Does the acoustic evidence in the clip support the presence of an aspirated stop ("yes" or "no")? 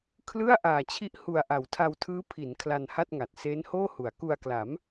yes